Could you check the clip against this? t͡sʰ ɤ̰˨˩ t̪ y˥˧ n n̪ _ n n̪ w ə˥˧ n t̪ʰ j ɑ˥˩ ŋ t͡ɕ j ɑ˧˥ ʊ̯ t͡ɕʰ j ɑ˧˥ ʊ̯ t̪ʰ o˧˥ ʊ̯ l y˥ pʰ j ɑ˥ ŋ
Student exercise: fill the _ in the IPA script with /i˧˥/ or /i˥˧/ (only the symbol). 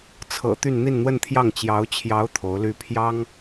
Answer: i˥˧